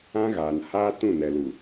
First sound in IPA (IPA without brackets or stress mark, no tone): ã